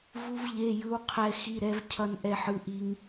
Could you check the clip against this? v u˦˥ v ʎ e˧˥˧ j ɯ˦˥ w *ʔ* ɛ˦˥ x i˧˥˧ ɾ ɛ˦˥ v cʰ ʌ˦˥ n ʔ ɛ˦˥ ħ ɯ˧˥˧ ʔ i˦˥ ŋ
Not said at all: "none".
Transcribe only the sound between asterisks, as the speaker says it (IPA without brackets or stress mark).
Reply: qʰ